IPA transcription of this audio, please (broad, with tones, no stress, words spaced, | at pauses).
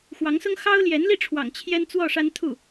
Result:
xwɑ˧˥ŋsʊ˥ŋ xɑ˥ʊ̯ ljɛ˧˥nli˥˩ʈ͡ʂʰwɑ̰˨˩ŋ t͡ɕʰjɛ˥nt͡swɔ˥˩ ʂa˥nt̪ʰu˥˩